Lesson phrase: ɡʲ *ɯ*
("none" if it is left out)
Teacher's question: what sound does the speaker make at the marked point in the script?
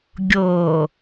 ɤ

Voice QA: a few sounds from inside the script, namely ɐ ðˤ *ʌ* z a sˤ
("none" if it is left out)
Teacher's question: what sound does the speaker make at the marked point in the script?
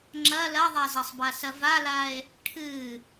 a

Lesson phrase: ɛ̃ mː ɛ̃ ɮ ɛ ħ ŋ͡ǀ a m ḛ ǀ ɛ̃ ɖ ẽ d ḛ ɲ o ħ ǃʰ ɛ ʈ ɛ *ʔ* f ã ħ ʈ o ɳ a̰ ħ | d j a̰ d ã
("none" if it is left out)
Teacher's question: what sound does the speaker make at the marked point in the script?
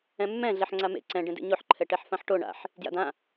ħ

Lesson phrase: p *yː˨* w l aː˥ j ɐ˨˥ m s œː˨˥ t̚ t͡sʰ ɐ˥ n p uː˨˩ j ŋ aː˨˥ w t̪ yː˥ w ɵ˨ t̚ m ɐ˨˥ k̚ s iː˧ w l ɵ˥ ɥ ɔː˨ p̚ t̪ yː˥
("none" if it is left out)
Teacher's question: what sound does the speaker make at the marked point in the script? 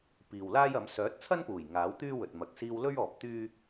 iː˨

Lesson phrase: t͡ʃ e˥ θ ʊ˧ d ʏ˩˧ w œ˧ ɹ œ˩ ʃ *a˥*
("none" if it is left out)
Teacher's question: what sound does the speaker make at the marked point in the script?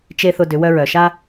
a˥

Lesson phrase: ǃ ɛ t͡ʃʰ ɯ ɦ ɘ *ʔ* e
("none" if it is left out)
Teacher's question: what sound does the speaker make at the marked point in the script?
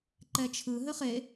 χ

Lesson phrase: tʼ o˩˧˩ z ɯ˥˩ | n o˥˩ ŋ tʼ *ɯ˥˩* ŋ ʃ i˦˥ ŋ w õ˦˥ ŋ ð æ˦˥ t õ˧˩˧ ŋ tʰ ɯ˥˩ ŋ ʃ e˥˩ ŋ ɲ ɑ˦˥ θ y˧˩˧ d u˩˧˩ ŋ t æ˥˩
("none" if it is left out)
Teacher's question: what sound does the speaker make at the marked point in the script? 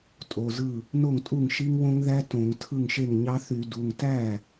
u˥˩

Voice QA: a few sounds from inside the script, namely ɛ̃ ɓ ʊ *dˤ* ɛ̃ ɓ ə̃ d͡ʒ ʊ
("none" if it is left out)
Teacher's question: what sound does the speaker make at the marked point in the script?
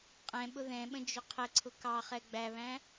ð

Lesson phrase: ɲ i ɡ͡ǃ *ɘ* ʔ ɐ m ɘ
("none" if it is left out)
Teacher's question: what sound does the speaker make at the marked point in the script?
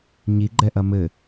ɛ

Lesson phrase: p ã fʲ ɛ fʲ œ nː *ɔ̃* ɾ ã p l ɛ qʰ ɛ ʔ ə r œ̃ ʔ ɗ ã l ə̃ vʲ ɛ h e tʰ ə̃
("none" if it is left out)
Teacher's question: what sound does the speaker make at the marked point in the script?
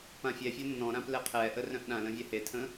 ɔ̃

